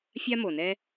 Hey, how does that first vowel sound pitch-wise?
high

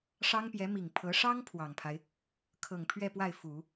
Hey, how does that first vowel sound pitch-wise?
high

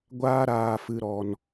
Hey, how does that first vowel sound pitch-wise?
high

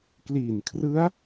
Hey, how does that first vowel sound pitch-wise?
low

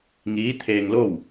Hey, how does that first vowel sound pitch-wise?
rising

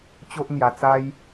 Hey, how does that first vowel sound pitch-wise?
high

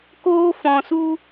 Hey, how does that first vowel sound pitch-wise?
high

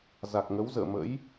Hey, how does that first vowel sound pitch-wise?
low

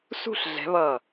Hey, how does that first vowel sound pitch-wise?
falling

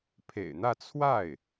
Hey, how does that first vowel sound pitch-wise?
low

